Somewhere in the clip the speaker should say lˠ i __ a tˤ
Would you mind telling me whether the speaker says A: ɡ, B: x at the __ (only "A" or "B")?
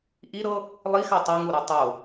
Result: B